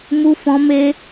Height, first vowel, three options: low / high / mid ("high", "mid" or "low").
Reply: high